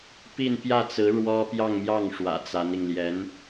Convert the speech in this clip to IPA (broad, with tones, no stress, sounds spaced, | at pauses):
p i˥˧ n p j ä˥˩ t͡s ɹ̩˧˥ ɻ w ɔ˥ p j ɑ˥˧ ŋ m j ɑ˥˩ ŋ ʂ w ä̰˨˩ t͡s a˧˥ n i˧ ŋ l j ɛ˧˥ n